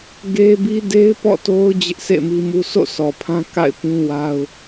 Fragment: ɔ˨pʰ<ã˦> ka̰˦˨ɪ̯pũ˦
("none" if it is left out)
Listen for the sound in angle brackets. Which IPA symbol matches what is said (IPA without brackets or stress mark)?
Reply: ã˦